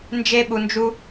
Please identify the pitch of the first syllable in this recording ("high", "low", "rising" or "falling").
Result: high